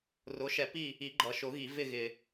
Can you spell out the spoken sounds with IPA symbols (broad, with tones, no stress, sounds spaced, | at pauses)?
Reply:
r ʊ˩˥ ʃ ɛ˨˩˦ p i˦˨ | i˨˩˦ ɡ͡ǃ ʌ˨ ʃ ʊ˨˩˦ ɣ i˨˩˦ v ɪ˦˨ ɣ ɪ˨